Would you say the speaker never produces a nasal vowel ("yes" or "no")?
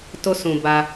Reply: no